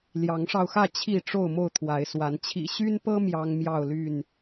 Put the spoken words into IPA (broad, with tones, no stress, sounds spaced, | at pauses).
l j ɑ˨˦ ŋ ʂ ɑ˧ ʊ̯ x ä˥˨ t͡ɕʰ i˥˨ ʈ͡ʂ o˥˨ ʊ̯ m o˥˨ ʊ̯ t̪ʰ w a˨˦ ɪ̯ s w a˨˦ n t͡ɕʰ ḭ˨˩ ɕ y˦ n p ɤ˦ m j ɑ˦ ŋ m j ɑ˥˨ ʊ̯ l y˥˨ n